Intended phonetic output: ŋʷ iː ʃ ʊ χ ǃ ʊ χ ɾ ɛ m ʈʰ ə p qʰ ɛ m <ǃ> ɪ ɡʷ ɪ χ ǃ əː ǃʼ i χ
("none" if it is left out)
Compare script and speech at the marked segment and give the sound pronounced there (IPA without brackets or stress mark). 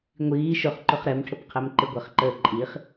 ǃ